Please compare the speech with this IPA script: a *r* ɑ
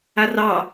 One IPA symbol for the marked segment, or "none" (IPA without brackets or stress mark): r